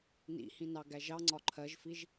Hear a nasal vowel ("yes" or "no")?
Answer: yes